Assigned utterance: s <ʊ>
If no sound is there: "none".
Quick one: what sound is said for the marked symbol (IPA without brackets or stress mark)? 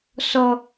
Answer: ɔ